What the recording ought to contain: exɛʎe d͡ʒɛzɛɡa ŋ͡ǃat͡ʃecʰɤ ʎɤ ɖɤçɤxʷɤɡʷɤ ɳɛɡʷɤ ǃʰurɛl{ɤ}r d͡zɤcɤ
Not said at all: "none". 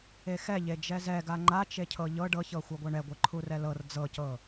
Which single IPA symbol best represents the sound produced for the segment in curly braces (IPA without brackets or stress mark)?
ɤ